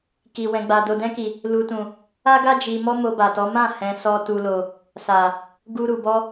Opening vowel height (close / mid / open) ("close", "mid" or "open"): close